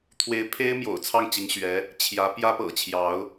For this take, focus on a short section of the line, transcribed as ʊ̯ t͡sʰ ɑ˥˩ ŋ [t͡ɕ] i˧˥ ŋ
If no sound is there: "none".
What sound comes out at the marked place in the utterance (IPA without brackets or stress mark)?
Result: t͡ɕ